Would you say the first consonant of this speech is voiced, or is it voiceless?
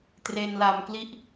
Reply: voiceless